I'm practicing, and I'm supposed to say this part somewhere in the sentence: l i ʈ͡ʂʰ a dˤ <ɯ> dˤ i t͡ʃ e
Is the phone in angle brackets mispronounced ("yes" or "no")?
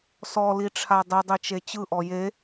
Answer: no